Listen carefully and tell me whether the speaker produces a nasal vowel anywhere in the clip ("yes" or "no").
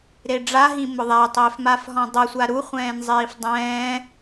yes